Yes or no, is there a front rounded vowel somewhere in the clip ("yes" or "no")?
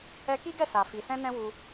no